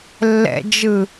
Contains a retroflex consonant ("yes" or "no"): no